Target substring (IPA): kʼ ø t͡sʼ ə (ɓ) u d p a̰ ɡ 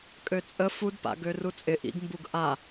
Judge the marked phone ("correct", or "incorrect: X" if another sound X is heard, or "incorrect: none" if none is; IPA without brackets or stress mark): incorrect: f